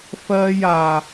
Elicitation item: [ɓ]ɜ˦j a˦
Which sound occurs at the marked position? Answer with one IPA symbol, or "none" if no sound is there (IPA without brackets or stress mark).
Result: f